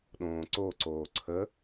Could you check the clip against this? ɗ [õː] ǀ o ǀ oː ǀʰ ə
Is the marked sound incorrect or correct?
correct